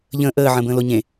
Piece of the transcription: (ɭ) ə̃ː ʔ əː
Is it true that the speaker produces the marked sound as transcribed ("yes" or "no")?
no